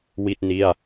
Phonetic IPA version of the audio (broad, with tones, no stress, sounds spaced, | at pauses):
w i˥˩ t̚ n i˥˩ a̯